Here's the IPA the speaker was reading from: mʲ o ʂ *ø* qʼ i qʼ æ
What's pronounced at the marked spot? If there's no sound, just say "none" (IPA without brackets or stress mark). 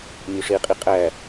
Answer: e